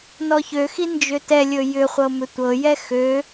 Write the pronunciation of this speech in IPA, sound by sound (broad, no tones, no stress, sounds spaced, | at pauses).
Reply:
n ɔ ç ø x i n d͡ʒ ø t ɛ lʲ ɵ j ʏ χʷ ɤ m ʏ tʷ ɤ j ɛ x ø